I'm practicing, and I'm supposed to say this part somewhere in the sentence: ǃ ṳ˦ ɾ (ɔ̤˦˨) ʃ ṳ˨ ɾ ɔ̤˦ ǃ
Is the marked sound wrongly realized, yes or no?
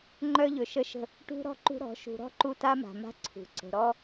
yes